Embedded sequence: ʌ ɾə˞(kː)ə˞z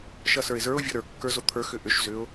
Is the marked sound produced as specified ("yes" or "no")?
yes